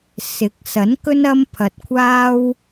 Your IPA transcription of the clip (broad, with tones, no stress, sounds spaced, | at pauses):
s ɪ˨˥ k̚ s ɐ˨˥ n k ɵ˥ n ɐ˥ m pʰ ɐ˨ t̚ kʷʰ aː˥ w